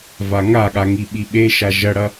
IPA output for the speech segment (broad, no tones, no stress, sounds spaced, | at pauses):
v a ŋ a ɠ a ŋ i ɓ i ɓ e ʃ a ʒ ɐ ɽ ɐ